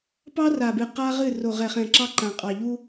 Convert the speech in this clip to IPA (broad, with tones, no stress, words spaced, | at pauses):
pɑ˦ra˨bɨ˨ qa˦ʁɨ˦˨ ro˨ʁɛ˨χɛ̃˨ ǁɑ˦ǃã˨ qʼɑ˨ʎu˦